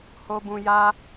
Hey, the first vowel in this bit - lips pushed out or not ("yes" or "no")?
yes